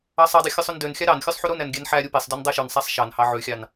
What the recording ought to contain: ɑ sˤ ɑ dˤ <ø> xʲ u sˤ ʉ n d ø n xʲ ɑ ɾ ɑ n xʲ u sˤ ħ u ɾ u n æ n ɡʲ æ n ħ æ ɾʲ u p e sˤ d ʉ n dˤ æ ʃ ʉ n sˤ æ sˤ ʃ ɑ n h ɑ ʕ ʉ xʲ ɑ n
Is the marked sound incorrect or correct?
correct